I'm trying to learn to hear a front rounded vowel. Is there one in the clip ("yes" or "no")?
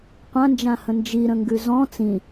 no